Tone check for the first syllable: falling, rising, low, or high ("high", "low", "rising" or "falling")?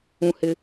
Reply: low